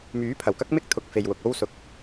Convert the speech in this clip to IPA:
m yː˨˥ pʰ ɐ˨˩ w k ɐ˥ k̚ m ɪ˥ k̚ t̪ʰ ʊ˨ k̚ f e˨ j w ʊ˨ k̚ o˥ w s ʊ˨˥ k̚

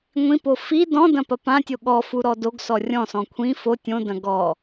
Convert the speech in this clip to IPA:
ŋʷ ĩ p o f i d ɔ̃ d ɐ̃ p ɐ p ã tʲ o ɠ ɔ f u ɾ ɔ d o ɡ s ɔ rʲ ɔ̃ s ɔ̃ kʷʰ ĩ f o tʲ õ d ɐ̃ ɡ ɔ

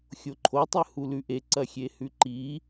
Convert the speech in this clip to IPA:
xʲ o ǃʰ o tˤ ɨ h u l ʉ ʔ e ǀ ɐ xʲ e h ʉ ǃ i

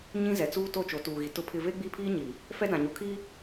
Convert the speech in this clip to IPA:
ɲ ĩ˦ z ɛ˨ t͡s uː˦ t o˦˨ t͡ʃ o˨˦ t uː˨ ɣ i˨ t ʊ˦ pʰ ɪ˦ v e˦ ɡ͡b i˦˨ pʰ iː˦ ɲ i˨ | f ɛ˦ d ã˨ ɲ o˨ kʰ i˦

